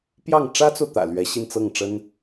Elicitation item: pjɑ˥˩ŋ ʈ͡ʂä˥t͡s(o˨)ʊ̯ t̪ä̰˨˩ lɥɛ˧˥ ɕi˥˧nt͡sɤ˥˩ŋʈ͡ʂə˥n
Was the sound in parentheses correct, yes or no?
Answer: yes